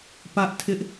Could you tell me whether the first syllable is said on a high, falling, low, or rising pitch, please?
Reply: high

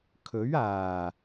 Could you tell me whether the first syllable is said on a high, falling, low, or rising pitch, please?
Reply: rising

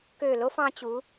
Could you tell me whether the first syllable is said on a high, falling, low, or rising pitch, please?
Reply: falling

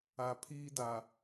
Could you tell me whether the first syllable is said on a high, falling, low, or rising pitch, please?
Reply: low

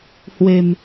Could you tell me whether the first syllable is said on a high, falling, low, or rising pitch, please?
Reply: low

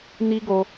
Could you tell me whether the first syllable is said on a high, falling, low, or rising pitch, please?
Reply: high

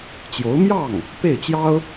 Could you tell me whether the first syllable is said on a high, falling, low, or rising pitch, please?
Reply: rising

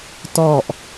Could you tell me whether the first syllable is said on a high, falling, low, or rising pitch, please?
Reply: low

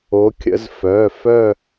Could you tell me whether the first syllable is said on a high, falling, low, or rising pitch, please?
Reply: rising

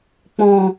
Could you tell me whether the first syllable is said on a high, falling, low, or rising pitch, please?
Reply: low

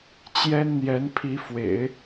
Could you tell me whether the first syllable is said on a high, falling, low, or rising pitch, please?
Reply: high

